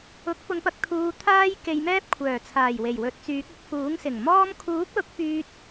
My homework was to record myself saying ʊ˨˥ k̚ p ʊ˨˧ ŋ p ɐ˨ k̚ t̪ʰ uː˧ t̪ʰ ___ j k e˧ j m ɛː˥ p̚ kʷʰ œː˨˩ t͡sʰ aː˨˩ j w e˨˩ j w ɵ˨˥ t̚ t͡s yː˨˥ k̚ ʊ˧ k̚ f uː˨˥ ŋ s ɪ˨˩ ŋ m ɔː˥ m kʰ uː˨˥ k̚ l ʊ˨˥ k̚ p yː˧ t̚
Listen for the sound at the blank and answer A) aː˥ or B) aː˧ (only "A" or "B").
A